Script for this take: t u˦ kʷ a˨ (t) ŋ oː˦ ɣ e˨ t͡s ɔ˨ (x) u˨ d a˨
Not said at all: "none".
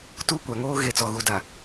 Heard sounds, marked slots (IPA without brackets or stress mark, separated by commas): none, ɣ